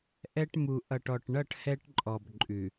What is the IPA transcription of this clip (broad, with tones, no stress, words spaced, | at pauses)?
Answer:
ʔɛ˦ʈ mu˨ ʔʌ˨ʈɔ˨ʈɳʌ˦˨ʈ hɛ˦ʈǃʼɔ˨b ǃʼʉ˨